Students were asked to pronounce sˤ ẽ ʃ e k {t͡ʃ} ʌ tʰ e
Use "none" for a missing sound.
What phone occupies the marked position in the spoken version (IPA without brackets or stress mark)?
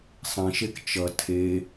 t͡ʃ